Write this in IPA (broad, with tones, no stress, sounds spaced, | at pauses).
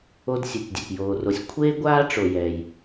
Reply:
o˥ d sʲ ɛ˧ tʲ dʲ ɛ˧ p j oː˧ r o˧ sʲ kʷʰ eː˥ ɡʷ aː˥ ʈ͡ʂ o˧ j ɛ˧ j